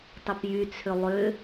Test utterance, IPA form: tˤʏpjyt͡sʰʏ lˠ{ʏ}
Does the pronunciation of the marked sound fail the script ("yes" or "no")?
no